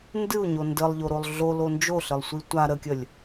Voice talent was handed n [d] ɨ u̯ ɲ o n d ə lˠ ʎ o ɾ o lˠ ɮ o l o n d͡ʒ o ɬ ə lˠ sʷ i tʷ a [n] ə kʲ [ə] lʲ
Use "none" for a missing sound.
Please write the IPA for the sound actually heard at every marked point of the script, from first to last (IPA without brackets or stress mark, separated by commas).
d, ɾ, ə